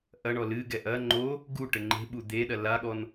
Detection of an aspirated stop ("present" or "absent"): absent